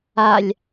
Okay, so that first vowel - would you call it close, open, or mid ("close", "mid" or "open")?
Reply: open